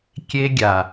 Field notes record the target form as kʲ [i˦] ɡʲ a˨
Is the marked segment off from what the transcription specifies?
yes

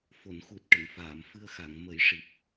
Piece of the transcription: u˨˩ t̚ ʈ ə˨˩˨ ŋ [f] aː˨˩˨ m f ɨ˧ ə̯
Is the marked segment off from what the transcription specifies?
no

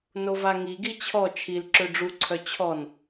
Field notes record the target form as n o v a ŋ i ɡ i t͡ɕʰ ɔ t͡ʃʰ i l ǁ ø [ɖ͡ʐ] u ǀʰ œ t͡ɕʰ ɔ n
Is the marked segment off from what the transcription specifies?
no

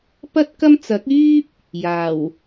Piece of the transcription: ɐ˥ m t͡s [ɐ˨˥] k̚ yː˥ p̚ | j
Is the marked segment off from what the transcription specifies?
no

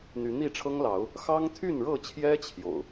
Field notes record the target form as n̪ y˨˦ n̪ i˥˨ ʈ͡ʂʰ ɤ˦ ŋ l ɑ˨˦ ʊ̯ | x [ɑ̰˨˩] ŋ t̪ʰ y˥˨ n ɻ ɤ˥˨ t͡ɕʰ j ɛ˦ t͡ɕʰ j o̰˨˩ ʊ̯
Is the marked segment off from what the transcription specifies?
yes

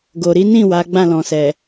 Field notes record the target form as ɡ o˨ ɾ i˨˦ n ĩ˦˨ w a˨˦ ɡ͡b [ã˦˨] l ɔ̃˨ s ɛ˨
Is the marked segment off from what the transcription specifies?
no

